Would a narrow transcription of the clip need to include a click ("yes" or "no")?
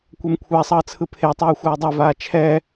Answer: no